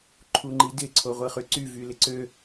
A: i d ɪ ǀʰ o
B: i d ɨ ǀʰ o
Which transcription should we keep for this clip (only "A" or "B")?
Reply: A